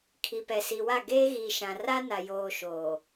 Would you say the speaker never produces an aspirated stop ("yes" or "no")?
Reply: no